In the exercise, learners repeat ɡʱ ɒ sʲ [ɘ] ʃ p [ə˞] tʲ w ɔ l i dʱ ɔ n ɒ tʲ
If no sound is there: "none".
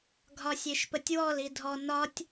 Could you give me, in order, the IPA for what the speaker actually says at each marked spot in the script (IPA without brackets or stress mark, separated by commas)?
e, ə